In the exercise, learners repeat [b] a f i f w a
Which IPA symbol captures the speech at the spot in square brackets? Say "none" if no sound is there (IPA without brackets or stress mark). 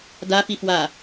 d